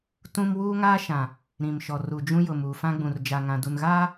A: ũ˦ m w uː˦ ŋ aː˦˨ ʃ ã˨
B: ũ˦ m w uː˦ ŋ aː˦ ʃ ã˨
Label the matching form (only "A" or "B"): B